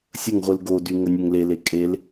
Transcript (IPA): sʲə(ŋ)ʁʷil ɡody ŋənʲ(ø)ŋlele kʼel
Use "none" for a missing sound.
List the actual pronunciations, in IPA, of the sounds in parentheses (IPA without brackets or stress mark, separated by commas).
ŋ, ø